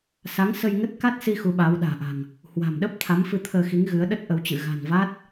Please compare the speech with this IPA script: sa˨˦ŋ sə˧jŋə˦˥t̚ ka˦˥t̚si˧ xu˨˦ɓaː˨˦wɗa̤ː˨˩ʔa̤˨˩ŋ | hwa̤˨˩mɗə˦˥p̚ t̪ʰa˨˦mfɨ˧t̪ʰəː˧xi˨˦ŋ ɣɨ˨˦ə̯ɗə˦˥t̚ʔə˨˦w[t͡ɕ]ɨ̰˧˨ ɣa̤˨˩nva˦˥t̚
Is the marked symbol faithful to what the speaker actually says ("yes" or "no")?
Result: yes